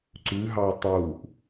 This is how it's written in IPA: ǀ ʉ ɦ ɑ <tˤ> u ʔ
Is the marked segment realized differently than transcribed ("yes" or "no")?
no